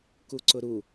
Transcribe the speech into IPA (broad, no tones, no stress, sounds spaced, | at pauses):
k u ǀ ʊ ɾ u